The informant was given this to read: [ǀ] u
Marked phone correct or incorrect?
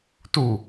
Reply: incorrect: t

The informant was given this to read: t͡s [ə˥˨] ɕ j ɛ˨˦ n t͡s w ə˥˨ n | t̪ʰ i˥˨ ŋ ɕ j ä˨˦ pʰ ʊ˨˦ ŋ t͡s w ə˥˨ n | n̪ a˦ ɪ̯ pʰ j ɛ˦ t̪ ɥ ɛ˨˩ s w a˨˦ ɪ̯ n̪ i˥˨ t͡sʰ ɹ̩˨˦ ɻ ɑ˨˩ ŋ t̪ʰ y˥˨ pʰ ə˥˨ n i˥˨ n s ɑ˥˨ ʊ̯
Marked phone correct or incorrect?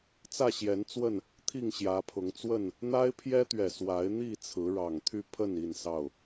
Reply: incorrect: ä˥˨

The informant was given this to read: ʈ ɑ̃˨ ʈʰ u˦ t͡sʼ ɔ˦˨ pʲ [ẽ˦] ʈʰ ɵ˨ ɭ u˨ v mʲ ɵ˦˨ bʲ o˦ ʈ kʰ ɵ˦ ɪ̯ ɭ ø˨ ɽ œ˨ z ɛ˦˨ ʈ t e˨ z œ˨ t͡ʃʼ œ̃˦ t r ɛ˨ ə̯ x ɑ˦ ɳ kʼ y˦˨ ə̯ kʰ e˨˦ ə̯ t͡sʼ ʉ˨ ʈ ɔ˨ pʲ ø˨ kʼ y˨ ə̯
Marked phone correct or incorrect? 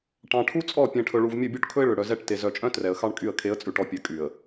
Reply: incorrect: ẽ˨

